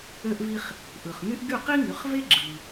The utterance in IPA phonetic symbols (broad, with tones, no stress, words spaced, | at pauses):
ø˥ʔvi˥χ | ʔɯ˩χŋy˥ʔ ɡy˥˩qi˥ŋy˩˧χve˥ ɡ͡ǁɯ˩